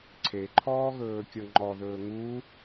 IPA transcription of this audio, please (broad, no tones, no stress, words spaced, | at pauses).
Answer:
ǀʰeǃʰɔːɣɵː kʲɤŋ͡ǃɔðɵː ŋu